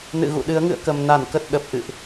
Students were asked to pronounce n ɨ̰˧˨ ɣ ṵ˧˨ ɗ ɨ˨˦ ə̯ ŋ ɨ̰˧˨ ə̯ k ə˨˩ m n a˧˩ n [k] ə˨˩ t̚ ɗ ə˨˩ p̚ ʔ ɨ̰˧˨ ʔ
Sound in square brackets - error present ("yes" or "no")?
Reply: no